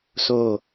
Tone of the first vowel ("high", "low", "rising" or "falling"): falling